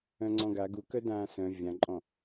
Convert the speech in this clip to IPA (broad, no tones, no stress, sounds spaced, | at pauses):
œ̃ ŋ͡ǀ ɔ̃ ɡ a ɡ u k œ d ãː s œ̃ vʲ ã ǃʼ ɔ̃